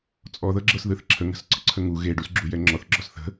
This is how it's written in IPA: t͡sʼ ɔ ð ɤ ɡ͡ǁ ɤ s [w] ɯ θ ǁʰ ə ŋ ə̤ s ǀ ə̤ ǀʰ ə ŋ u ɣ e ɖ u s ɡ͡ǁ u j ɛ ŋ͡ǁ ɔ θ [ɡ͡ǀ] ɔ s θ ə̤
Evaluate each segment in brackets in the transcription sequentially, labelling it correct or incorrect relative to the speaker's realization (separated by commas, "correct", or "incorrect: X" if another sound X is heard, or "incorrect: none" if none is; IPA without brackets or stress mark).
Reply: incorrect: ð, incorrect: ɡ͡ǁ